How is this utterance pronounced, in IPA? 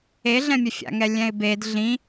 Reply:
e ɮ ɛ̃ mʲ ɛ fʲ a̰ ŋ ɛ lʲ ɛ̃ ɪ̯ b e d ɮ ĩ

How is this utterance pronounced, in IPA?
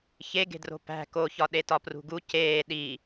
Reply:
ç e ɡ e̤ d r o̤ p æ̤ k o ç ɒ ɗ e t ɒ p r ṳ ɡ u c eː ɗ i

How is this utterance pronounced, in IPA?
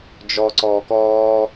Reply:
d͡ʒ ɔ ǀ ɔː k ɔː

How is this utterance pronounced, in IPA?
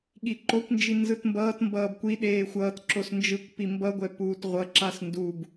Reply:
ɠ i ǃ o kʷ n d͡ʒ i n z ɯ t m b ʌː t m b ʌː b kʷ i ɗ eː xʷ ʌː t ǁ o s n d͡ʒ ɯ kʷ p i m b ʌ ɡʷ ɛ p uː t ʁʷ ʌ ǁ a s n d u b

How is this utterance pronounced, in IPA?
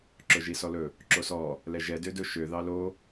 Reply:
ǁ ɵ ʒ i s ɔ l ɵ | ǁ o s ɔ | l ɛ ʒ ɛ d ø d ɵ ʃ ø ð ɑ l o

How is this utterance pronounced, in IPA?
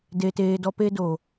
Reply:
d e˧ t eː˧ d ɔ˦ p e˦ d o˨

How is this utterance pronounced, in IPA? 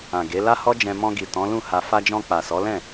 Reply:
ã˨ ɡ e˨˦ l a˦ h ɔ˦ d͡ʒ ɛ̃˧ m ɔ̃˧ ɡ i˨ t ɔ̃˨˦ l ũ˦˨ h a˧ f a˧ d͡ʒ ɔ̃˧ k͡p a˨ s ɔ˨˦ l ɛ̃˦˨

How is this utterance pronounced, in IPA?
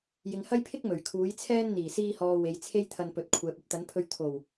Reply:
j ɪ˨ ŋ h ɐ˥ j pʰ ɪ˥ k̚ m ɵ˨˩ ɥ kʰ uː˨˥ j t͡sʰ ɛː˥ n n̪ iː˨˩ s iː˧ h ɔː˨ w e˨˧ j t͡sʰ e˥ j t̪ʰ ɐ˧ n p ɵ˨˥ t̚ kʷʰ ɛː˨ p̚ ɵ˧ t̚ t̪ ɐ˨˥ n pʰ ɵ˧ ɥ t̪ʰ o˨˩ w

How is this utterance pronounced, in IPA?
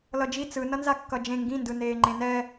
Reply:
l ʌ d͡ʒ i t͡s ɯ n ʌ n z a kː ʌ d͡ʒ ẽ ŋ ɡ ĩ n d ɯ n eː ŋ͡ǃ ẽ n ɛ

